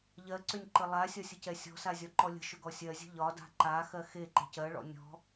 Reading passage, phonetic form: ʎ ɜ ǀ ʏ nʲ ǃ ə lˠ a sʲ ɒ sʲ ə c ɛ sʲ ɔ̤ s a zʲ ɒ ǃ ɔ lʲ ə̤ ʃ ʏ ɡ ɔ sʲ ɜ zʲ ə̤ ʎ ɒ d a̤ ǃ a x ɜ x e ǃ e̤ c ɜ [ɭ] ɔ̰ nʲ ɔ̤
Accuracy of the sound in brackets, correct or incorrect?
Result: correct